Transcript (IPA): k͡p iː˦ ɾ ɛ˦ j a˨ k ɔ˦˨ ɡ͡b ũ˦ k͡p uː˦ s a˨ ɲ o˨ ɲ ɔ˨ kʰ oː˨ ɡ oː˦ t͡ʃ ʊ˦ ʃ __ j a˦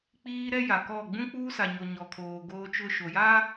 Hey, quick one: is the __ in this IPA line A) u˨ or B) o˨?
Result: B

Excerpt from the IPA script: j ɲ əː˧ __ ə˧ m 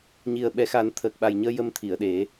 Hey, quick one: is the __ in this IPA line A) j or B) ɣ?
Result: A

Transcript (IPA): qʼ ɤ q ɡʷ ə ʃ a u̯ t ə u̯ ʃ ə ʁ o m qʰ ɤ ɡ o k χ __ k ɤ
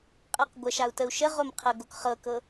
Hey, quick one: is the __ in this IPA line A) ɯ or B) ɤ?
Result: B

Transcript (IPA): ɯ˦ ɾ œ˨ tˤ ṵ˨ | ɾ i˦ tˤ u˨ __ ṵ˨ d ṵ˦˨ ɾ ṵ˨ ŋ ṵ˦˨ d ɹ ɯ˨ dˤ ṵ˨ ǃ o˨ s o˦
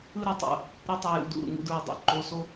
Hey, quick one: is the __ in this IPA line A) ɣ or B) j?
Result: B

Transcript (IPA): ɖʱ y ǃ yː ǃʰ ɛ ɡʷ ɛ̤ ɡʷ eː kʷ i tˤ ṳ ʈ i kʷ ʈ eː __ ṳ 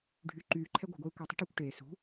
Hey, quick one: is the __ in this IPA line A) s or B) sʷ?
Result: A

